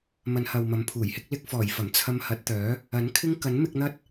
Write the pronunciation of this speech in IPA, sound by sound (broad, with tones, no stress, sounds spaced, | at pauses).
m ɐ˨˧ n h ɐ˨ w m ɐ˨˥ m pʰ uː˨˩ j h ɪ˥ k̚ l ɪ˧ k̚ f ɔː˨˩ j f ɐ˨˩ m t͡sʰ ɐ˧ m h ɐ˨˥ t̚ t̪ œː˨˥ | ɐ˨˥ n kʰ ɪ˥ ŋ k ɐ˨˥ n m ɪ˧ k̚ n̪ ɐ˥ t̚